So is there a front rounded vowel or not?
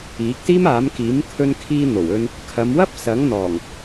no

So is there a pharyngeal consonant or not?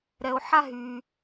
yes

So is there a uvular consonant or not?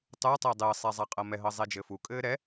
yes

